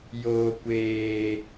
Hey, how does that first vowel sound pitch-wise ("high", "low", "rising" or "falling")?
low